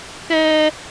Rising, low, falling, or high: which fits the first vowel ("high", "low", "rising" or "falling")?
high